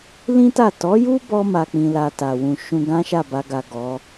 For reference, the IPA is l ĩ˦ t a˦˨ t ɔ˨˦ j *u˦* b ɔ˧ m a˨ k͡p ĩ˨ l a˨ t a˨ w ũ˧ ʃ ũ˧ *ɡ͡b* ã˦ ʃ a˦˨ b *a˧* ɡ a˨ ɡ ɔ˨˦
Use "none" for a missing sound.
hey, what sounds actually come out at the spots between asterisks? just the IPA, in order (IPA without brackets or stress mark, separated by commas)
u˦, ɡ, a˧